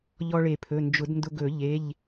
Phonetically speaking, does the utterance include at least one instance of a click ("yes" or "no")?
no